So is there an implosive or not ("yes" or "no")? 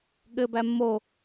yes